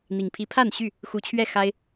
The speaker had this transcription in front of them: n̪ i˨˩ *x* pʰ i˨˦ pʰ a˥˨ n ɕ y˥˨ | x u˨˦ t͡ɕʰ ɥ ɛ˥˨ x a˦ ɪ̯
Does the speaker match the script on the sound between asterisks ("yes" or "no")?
no